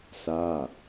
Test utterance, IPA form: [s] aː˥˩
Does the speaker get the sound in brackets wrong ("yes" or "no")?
no